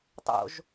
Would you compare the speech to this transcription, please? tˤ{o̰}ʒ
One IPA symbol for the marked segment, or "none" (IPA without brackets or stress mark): o̰